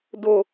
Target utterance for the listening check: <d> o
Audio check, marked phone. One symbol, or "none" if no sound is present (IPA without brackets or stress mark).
d